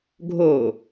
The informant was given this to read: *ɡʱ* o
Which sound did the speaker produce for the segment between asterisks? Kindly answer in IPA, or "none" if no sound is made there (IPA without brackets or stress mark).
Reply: ɡʱ